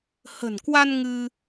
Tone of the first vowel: low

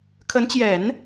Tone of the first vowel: rising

